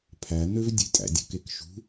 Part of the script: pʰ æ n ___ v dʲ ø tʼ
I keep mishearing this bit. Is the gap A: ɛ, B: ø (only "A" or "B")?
B